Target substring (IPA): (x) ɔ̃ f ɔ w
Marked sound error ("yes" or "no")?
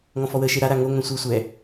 yes